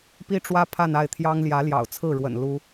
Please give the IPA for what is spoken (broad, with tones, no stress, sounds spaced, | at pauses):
p i˥ ʈ͡ʂ w ä˥ pʰ a˥˧ n a˥˩ ɪ̯ t̪ʰ j ɑ˥ ŋ l j ä˧˥ l j ɑ̰˨˩ ʊ̯ t͡sʰ ɹ̩˥˩ ɻ w ə̰˨˩ n l u˥